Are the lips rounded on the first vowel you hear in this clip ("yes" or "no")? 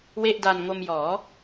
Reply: no